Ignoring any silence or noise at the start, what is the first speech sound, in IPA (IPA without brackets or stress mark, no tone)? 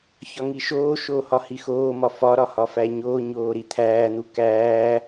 ç